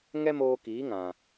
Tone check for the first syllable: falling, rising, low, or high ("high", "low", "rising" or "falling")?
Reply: high